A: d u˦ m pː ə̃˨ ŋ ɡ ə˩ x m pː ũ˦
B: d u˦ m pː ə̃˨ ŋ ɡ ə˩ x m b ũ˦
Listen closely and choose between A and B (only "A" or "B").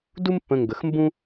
B